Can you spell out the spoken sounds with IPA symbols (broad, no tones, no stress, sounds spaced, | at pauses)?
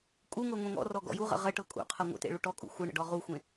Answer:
kʼ u ŋ ɤ ŋʷ ẽ ŋ ɔ̰ r ɔ ɡ ɔ̰ j u ʁ ə̰ ʁ ə ʈ ɤ kʼ ṵ qʰ ɤ ŋʷ ə̰ t ḛ ɭ u ʈ ɔ kʼ ṵ xʷ ɯ ɳ ə̰ ɖ ɔ ʁ u xʷ ẽ